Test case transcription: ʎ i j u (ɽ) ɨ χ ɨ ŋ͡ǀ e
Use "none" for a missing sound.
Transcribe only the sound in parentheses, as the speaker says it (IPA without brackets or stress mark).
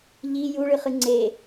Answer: ɭ